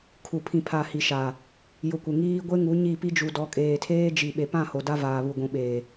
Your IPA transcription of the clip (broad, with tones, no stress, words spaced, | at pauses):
kʰu˨pʰĩ˨pʰa˨ hi˨ʃa˨ | jʊ˨kʷɪ˨ŋiː˦ ɡʷe˦ŋu˨˦ ɲi˦˨pi˦ d͡ʒu˨dɔ˨kʼeː˨tʰeː˦ d͡ʒi˨ɓe˨pã˦˨ ho˨da˦ vaː˨βu˨ɡʷũ˨ɓeː˨